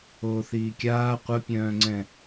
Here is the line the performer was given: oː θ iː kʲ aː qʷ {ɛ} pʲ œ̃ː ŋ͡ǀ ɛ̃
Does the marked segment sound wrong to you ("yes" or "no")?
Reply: yes